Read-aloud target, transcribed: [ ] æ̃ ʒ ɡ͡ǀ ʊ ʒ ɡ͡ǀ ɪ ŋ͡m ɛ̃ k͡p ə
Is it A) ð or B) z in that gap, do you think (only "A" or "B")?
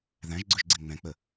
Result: A